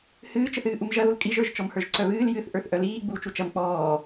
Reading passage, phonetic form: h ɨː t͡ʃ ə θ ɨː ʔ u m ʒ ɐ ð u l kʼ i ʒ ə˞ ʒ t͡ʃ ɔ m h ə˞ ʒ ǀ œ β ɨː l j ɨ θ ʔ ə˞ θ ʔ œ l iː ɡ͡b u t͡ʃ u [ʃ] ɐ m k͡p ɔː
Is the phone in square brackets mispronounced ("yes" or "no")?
yes